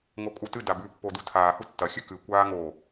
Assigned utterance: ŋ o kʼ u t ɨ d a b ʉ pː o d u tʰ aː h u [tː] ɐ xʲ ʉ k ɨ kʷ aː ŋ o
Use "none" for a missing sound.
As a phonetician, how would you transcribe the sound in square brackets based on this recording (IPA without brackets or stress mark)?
tː